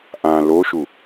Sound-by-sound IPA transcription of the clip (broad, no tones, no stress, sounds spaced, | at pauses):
ʔ ã l o ʃ u